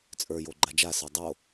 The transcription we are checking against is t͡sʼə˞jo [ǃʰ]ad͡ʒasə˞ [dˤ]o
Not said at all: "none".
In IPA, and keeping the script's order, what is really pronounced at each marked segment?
ɡ͡ǃ, dˤ

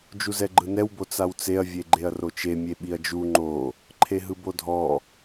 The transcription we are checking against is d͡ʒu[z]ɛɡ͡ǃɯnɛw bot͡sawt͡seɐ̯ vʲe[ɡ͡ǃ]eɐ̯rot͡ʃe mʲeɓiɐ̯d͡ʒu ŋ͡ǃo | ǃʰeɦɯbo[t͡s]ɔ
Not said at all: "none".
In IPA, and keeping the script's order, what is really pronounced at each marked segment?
z, ɡ͡ǃ, dʱ

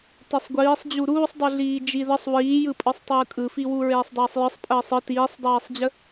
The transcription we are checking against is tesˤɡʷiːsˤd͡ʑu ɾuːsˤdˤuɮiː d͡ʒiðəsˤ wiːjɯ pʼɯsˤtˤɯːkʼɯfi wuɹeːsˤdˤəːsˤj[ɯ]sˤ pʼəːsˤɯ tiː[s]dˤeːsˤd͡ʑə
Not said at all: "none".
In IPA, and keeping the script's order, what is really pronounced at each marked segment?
ɯ, sˤ

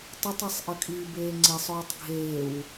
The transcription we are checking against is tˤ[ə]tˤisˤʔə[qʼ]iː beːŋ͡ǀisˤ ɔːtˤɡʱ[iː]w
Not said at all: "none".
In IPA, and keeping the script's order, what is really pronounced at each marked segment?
ə, kʼ, eː

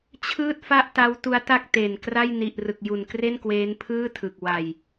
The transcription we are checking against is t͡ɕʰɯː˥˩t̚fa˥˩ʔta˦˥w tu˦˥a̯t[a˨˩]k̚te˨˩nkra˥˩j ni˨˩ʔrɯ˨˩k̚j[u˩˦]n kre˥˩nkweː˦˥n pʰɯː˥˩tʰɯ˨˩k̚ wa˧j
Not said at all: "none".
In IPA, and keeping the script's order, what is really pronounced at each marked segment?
a˥˩, u˨˩

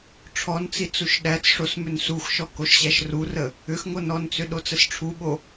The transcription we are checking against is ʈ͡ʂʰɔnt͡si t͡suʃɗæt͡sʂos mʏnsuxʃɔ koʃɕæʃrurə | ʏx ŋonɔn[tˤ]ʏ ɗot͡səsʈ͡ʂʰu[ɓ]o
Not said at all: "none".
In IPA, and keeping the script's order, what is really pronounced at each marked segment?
t͡s, ɓ

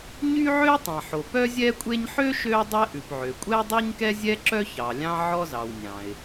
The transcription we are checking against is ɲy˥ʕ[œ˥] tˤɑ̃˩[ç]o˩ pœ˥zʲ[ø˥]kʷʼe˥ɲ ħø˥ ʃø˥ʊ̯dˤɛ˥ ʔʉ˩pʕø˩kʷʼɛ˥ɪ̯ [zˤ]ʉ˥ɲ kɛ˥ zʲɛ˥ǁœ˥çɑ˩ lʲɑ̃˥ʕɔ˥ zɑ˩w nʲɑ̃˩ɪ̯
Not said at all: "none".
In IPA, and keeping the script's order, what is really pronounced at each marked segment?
ø˥, ħ, ɛ˥, dˤ

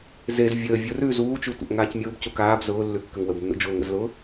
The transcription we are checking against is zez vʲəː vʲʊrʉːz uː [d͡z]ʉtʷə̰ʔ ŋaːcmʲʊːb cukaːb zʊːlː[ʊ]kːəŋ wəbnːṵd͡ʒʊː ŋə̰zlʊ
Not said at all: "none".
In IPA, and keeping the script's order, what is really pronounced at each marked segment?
t͡ʃ, ʉ

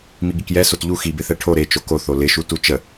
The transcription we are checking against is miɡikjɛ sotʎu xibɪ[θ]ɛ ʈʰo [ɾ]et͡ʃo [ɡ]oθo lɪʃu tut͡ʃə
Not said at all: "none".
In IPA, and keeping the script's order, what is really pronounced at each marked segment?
θ, ɾ, k

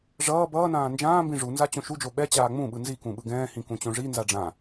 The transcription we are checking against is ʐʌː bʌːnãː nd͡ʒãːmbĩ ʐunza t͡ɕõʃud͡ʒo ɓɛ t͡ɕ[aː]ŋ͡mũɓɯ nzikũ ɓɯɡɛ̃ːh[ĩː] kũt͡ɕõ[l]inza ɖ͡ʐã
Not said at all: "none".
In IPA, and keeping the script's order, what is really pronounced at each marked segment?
aː, ĩ, ʐ

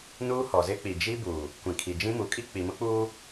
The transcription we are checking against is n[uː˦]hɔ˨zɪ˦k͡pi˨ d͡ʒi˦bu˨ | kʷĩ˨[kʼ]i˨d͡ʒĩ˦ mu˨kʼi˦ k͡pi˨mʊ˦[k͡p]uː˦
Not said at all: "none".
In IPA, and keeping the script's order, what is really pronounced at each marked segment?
uː˦, kʰ, k͡p

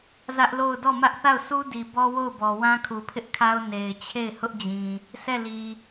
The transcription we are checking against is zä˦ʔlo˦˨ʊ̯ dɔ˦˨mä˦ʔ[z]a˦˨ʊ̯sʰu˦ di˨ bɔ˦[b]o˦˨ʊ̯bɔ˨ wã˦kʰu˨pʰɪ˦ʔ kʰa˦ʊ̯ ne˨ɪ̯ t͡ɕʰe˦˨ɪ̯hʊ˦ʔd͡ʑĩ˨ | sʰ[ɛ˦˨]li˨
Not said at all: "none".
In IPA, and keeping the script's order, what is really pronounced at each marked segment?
θ, w, ɛ˦˨

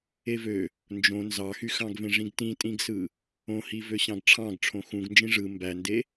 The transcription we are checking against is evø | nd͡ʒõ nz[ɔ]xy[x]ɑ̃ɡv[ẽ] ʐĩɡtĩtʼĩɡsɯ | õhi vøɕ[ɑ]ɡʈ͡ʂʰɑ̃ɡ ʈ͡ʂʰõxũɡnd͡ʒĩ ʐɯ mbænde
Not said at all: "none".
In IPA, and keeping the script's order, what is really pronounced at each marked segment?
ɑ, x, ẽ, ɑ̃

